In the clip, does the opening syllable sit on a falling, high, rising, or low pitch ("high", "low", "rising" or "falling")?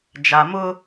low